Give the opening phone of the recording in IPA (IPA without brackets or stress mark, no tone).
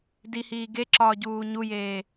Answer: d